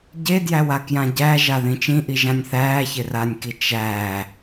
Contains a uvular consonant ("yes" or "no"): no